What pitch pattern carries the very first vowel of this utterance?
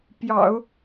low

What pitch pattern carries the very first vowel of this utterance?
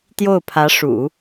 falling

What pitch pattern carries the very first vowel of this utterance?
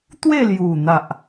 falling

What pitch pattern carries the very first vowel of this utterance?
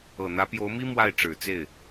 low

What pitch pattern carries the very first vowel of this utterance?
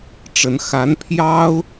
rising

